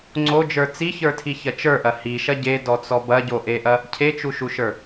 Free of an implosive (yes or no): yes